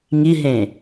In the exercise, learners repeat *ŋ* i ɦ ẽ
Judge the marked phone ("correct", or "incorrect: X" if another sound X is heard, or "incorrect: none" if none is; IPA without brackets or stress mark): correct